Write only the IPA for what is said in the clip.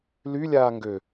l y lʲ aː ŋ ɡ ø

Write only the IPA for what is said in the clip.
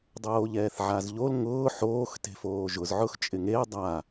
dˤ oː ʎ ɛː θ ʕ a z ʎ o l ŋ ʊː ħ oː x t e̤ f oː ʒ ʊ z ʕ ʊ x t͡ʃʼ ɪ ŋ e i̯ dˤ a

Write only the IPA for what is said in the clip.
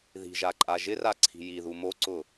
ð i̤ ʒ a ǃʼ a ʒ ɪ r a ǀʰ i̤ j i ð u m o ǀ ʊ

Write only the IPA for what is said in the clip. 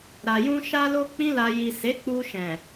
ɾ a˨ j ũ˧ ʃ a˧ l o˧ k͡p ĩ˦ l a˧ j i˨ s e˨˦ k͡p u˧ ʃ ɛ̃˨

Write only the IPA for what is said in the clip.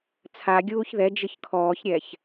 t͡sʰ a ɡʲ uː ç ð ɛ d͡ʒ ɨ ç kʰ ɔː ç ɾʲ ɛ ç

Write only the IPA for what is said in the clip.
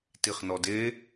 t i χ n ɔ d e

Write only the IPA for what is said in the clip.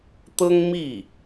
t̪ ɤ˥ ŋ m i˥˩

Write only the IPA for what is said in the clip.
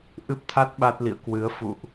ʔ ɨ˦˥ p̚ t̪ʰ a˦˥ t̚ ɓ a˦˥ t̚ l ḭ˧˨ ə̯ k w ɨ˨˦ ə̯ f ṵ˧˨ ʔ

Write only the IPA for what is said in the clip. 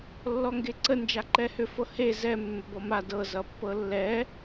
lː ɔ ŋ ɡ e ǀ ə n d͡ʒ a ǃ ɛ h ʏ f ɤ h e z ɛ mː ʏ b ɔ m a d ɤ z ʌ pː ɤ lː ɛ

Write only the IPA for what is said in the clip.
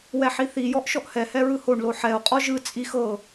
w ɛ ħ i θ i j ɔ ʔ ʃ ɔ ʔ h ɛ h ɛ ɹ ɯ h o ɳ l o ħ ɛ o̯ qʼ ɔ ʒ ɯ t͡sʼ i x ɤ

